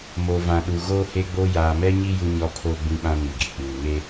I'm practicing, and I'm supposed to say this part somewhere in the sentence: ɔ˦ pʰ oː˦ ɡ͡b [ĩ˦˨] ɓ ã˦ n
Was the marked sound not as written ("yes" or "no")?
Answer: yes